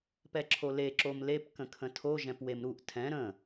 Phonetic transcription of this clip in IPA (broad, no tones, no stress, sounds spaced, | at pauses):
p ɛ ǁʰ o l e ǁ o m l e p k ə̃ kʰ ə̃ tʰ o ʒ ɛ̃ p w e m ɾ u ʔ tʰ ɛ̃ ɾ ə̃